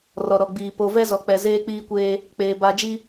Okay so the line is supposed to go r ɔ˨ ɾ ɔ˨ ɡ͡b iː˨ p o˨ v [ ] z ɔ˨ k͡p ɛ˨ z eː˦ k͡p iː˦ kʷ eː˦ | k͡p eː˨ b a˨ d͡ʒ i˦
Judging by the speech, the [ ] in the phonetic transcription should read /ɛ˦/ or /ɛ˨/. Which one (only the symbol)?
ɛ˦